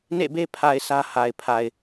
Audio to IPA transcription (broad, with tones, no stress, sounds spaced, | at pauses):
n ḛ˦˨ b e˦ pʰ a˨ ɪ̯ sʰ ä˦ h a˨ ɪ̯ pʰ a˨ ɪ̯